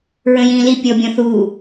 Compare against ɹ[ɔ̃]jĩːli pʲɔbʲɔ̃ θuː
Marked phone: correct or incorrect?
incorrect